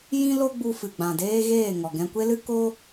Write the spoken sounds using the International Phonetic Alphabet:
jĩ˦lo˦ɡ͡bu˧ fɨ˨ɡ͡bã˨deː˦ɣeː˦˨ ŋɔ˨ɡɛ̃˧kʷe˦lɨ˦ ko˦

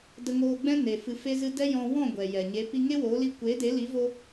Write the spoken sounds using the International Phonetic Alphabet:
də˧ŋoː˧ɡ͡bɛ̃˦ne˨ fɨ˧fe˦zɨ˦ dɛ˦jɔ̃˧ wɔ̃˦˨ ɡʷɛ˨jɛ˨ ɲe˨˦ pi˧ŋe˦woː˨˦li˧ kʷeː˨˦de˨˦li˨˦vo˧

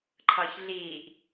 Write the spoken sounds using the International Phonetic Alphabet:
ǃʰʌːçɮiːʔ

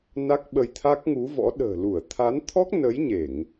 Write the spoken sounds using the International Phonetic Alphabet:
na˦˥k̚ɓə˧jt̪ʰa˦˥k̚ ŋu˨˦vɔ̰˧˥ ɗə̤ː˨˩lu˧˩ə̯ t̪ʰa˨˦nt̪ʰɔ˦˥k̚nə˨˦j ɲe˧˩˨ŋ

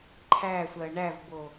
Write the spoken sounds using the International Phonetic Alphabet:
ǃʰæsʷɜ ɳævbo

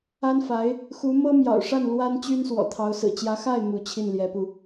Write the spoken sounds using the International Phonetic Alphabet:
a˥nfa˧˥ɪ̯ | xu˧˥ mɤ˥mjɑ̰˨˩ʊ̯ʂa˥˩n lwa˥nt͡ɕy˥n swɔ̰˨˩t̪ʰɑ˧˥ʊ̯ sɹ̩˨˩t͡ɕjä˧˥xa˥˩ɪ̯ mu˧˥t͡ɕʰi˥˩n ljɛ˧˥pu˧

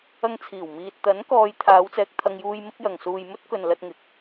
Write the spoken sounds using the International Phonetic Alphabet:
ɐ˧ŋt͡sʰiː˨˩w miː˧t̚ t̪ɐ˨˥nkɔː˨˧j t̪ʰaː˨˧wt͡sɛː˧k̚t̪ʰɐ˧ŋjuː˧j mɪ˥k̚jɐ˨ŋ suː˨j mɵ˥t̚kɵ˨n lɐ˧t̚ŋɪ˨˥k̚

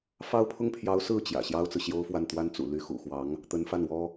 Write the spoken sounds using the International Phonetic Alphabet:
fɑ˥ʊ̯pʰʊ˥ŋpʰjɑ˧˥ʊ̯ sɹ̩˥˩ t͡ɕjä̰˨˩ ɕjɑ˥ʊ̯t͡sɹ̩˨ɕjo˥ʊ̯fwa˥˩n t̪wa˥nt͡sṵ˨˩ ly˥ xṵ˨˩xwɑ˧˥ŋ | t̪ə˧˥nfa˥˩nwɔ˥

